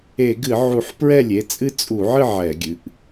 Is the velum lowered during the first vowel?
no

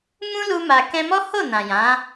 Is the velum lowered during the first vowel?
yes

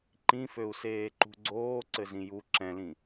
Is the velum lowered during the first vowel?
yes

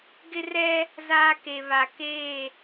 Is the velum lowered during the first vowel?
no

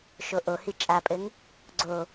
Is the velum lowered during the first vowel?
no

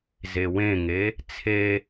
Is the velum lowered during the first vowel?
no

